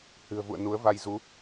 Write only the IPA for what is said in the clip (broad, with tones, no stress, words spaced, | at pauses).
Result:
hɨ̤˨˩ə̯vṵ˧˨ə̯ nu˨˦ə̯va˧j zu˨˦